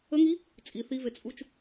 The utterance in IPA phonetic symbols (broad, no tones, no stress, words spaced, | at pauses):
əŋi | t͡sʼi θivet͡sʼut͡ʃ